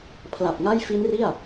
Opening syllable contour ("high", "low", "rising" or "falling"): low